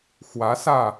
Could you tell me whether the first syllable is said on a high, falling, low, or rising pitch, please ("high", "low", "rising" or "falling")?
rising